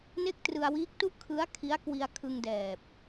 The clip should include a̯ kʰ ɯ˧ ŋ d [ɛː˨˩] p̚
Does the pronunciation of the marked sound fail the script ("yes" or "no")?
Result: no